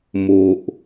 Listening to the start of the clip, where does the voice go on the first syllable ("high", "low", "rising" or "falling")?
low